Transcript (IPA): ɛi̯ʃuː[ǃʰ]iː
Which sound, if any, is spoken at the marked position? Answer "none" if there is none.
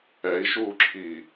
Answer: ǁʰ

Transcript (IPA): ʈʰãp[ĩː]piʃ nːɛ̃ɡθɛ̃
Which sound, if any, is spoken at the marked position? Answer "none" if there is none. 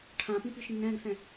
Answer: ĩ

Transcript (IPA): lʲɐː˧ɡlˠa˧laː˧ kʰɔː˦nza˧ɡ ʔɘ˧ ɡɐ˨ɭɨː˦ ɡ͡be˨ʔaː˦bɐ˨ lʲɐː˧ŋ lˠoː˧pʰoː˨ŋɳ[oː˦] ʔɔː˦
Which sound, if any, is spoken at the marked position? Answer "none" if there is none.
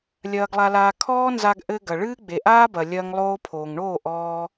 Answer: oː˦˨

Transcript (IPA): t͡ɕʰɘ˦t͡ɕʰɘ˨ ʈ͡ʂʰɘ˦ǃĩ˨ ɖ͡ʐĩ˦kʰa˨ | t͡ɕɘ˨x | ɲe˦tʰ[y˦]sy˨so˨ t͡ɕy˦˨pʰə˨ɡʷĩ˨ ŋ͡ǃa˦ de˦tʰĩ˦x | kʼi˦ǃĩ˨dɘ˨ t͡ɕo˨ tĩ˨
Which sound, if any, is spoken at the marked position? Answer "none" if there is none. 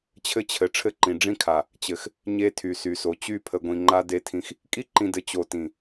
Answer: y˨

